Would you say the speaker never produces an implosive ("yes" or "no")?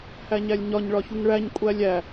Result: yes